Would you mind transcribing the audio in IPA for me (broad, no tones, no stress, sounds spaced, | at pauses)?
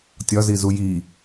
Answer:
tʲ ɒ z i z u j i